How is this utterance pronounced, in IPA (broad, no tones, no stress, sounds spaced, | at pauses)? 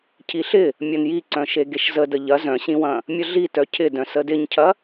cʰ i ɬ ɪ | mʲ ɐ n j i ǀ œ̃ ʃ e ɡ e ʃ z ə d ə ʎ ɐ z œ̃ ɕ ĩ w ɐ̃ | mʲ ə ɮ i t œ cʰ ɪ d œ̃ s ə d ɪ ɲ cʰ ɐ